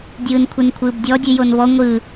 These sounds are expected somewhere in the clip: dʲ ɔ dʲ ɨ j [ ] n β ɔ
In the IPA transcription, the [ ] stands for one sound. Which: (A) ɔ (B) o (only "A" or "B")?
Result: B